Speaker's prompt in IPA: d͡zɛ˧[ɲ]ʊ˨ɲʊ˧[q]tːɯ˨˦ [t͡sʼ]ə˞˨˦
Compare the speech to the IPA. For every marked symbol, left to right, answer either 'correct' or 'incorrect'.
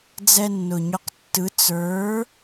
incorrect: nː, correct, incorrect: t͡s

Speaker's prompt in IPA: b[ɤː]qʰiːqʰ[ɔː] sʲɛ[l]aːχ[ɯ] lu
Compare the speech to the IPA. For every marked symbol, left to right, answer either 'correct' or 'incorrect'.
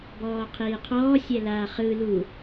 incorrect: ɔː, correct, correct, correct

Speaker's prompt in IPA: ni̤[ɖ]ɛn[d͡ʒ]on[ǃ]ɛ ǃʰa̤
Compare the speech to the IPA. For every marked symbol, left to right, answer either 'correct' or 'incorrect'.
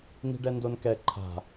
correct, incorrect: d, incorrect: k

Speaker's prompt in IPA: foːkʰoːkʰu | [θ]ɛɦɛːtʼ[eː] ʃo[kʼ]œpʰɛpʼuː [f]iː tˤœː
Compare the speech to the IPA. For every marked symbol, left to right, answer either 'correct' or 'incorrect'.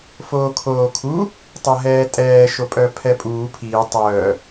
incorrect: tˤ, incorrect: ɛː, incorrect: pʼ, incorrect: pʰ

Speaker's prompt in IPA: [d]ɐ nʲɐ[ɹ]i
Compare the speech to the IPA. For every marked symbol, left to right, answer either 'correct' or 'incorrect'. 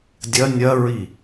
incorrect: dʲ, correct

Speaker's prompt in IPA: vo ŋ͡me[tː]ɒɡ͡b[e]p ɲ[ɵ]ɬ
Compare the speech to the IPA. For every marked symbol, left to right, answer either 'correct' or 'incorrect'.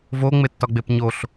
correct, correct, incorrect: o

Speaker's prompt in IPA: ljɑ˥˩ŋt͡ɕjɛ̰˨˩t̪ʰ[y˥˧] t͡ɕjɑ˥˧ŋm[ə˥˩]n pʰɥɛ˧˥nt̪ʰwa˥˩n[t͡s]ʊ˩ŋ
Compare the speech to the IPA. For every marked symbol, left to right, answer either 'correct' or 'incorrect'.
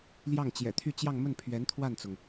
correct, correct, correct

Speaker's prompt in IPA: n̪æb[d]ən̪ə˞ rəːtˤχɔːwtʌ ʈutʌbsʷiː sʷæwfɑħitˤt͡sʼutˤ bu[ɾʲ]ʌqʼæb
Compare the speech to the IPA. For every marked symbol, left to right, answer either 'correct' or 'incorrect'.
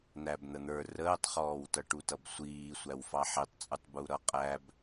incorrect: n̪, incorrect: ɾ

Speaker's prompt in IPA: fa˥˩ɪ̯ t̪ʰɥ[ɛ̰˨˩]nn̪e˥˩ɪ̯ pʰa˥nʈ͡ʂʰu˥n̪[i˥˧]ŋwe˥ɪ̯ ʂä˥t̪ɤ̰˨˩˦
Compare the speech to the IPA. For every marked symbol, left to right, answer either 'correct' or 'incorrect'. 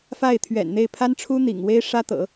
correct, incorrect: ḭ˨˩

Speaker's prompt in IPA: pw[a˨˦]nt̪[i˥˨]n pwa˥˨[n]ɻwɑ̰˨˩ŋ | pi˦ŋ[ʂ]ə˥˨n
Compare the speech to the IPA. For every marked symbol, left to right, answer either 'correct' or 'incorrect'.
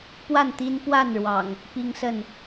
incorrect: a˥˨, incorrect: i˦, correct, incorrect: s

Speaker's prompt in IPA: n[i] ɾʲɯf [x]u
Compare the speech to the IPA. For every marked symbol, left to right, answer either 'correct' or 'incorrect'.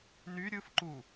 incorrect: y, incorrect: ǃ

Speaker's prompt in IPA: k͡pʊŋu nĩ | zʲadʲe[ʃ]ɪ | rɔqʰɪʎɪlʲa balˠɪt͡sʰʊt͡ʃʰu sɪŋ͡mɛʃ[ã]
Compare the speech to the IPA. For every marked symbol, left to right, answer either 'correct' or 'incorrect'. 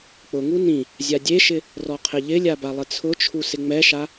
correct, incorrect: a

